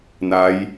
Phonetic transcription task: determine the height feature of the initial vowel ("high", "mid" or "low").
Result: low